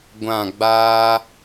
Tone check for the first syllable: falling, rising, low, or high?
falling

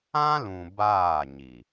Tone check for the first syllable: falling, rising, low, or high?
high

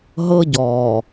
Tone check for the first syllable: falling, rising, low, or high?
high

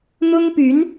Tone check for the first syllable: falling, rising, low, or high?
high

